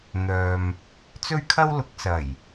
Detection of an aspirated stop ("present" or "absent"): present